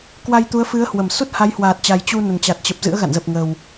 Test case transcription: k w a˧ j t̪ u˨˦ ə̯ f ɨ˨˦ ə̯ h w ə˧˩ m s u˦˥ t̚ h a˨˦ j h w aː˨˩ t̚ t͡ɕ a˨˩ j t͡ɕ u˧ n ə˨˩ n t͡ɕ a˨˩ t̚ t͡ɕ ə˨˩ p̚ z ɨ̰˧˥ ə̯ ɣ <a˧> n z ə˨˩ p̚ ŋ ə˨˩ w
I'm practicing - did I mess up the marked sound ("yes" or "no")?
yes